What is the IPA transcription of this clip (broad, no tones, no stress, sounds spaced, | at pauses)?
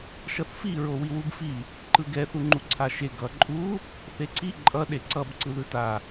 ʃ ʌ θ f i ɹ o w i w u b f i | ǃ ɯ ɡ ɛ θ u ŋ͡ǃ u ǀʰ a ʃ e ɡ ʌ ǃʼ u | θ e ǀ i ǃʼ ʌ ɗ e ǀ ʌ b ǀ ɯ ð ɯ t a